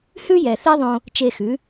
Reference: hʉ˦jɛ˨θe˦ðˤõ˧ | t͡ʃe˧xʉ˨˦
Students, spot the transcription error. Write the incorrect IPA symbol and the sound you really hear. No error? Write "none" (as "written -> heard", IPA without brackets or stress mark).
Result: none